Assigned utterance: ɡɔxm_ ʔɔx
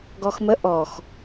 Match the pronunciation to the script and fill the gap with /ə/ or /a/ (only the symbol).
ə